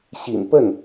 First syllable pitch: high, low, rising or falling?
low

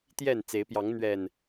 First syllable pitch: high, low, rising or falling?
falling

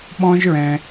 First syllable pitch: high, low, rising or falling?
high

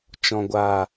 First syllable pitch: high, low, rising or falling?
low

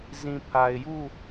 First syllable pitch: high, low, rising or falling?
low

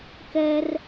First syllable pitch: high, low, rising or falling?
high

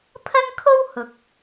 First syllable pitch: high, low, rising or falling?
high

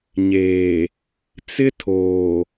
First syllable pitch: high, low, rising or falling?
low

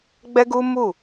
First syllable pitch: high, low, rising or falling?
high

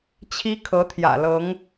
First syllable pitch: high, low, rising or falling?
high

